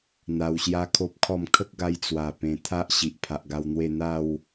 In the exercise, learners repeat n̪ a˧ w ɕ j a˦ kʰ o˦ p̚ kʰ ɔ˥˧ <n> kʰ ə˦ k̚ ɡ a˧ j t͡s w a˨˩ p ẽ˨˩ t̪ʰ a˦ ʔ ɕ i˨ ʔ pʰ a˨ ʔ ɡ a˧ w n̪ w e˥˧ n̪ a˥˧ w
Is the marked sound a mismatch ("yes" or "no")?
yes